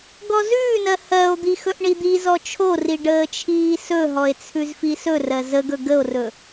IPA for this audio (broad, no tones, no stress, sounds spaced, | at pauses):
ɡ ɔ z ʉː n ɜ h ɜ o̯ d̪ i x ɵ ʔ ɳ i d̪ i z ɔ t͡ʃʰ o r i ɖ əː t͡ʃʰ iː s ɵ ɦ ɔ e̯ t͡sʰ ʉ z f i s ɵ r ɜ z ə ɡ ɵ ɡ ə o̯ r ɵ